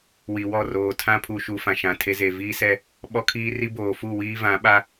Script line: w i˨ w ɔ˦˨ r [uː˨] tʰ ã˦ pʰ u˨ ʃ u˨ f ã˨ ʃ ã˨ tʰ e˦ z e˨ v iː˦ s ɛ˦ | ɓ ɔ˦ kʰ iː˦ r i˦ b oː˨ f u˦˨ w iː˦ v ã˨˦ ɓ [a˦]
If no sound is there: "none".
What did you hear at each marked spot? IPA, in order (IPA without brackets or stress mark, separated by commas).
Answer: oː˨, a˦